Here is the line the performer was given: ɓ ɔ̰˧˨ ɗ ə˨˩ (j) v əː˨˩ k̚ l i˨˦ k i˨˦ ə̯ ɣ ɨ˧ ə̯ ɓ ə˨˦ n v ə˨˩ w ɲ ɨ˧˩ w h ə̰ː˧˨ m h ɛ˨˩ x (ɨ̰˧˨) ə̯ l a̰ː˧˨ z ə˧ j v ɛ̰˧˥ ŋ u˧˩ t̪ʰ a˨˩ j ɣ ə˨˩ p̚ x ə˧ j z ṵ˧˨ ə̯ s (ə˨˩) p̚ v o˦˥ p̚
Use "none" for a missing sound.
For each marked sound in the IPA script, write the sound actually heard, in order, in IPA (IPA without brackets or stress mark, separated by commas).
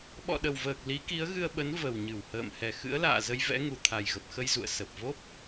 w, ɨ̰˧˥, ə˨˩